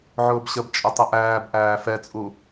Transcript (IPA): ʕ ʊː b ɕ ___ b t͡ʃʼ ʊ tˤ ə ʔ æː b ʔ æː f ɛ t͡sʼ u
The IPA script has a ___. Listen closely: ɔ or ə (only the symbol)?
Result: ə